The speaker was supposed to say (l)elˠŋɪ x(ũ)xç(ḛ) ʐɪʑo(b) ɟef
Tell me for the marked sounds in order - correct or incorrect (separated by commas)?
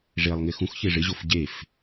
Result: incorrect, correct, incorrect, incorrect